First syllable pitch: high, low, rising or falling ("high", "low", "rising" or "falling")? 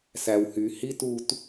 low